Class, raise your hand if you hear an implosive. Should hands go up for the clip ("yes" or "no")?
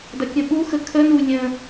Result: yes